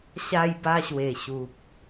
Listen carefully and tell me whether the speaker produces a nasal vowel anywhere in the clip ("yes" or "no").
no